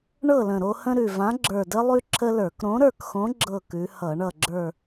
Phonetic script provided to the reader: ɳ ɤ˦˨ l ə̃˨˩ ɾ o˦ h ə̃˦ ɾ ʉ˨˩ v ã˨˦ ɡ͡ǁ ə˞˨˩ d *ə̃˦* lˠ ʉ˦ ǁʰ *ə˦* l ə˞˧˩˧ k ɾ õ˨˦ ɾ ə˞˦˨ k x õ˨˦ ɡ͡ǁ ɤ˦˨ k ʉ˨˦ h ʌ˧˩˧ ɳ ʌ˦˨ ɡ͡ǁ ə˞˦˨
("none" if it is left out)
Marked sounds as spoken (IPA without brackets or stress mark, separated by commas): ə˦, ə˦